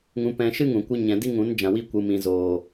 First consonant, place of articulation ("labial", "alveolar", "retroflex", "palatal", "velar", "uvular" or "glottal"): velar